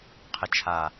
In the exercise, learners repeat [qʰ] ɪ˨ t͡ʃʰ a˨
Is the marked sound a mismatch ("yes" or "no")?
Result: no